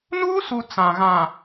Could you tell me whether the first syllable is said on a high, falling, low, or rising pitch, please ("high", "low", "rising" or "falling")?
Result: high